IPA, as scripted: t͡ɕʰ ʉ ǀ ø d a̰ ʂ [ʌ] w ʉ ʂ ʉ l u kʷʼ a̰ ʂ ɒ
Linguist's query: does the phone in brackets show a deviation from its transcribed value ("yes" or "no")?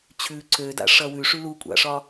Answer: no